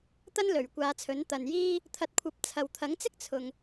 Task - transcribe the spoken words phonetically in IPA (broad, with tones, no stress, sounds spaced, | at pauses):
t̪ ɐ˥ n l ɵ˨˩ ɥ kʷ aː˨˧ t͡sʰ ɵ˨˥ n t̪ ɐ˨ n j iː˥ | t̪ʰ ɐ˧ t̚ kʷʰ ɐ˧ p̚ t͡sʰ ɐ˨ w t̪ʰ ɐ˨˥ ŋ t͡s ɪ˥ k̚ t͡sʰ ʊ˨ ŋ